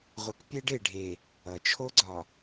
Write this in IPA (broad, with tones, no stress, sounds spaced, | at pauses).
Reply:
ʁʷ ʌ˨ k pʲ e˦ ɖ e˨ ɖʱ e˨ | ʌ˨ t͡ʃʰ o˦ ɡ͡ǀ ɒ˨